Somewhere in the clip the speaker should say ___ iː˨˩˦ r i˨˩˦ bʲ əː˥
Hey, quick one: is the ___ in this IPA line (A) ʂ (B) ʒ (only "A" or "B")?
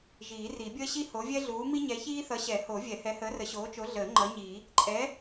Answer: B